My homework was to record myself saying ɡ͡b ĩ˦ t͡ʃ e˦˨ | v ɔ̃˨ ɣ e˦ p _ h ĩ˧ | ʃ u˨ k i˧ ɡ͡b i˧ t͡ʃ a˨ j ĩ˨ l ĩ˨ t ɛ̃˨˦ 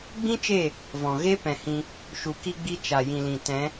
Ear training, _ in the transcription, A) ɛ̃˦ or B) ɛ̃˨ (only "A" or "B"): B